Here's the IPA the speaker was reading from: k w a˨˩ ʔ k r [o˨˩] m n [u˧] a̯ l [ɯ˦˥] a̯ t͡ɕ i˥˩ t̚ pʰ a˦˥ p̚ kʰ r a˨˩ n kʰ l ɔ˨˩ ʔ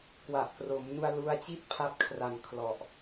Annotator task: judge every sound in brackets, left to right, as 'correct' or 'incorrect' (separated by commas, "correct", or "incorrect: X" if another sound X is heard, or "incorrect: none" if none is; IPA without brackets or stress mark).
incorrect: o˩˦, correct, incorrect: u˦˥